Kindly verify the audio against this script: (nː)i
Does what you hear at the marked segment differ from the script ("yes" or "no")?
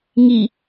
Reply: yes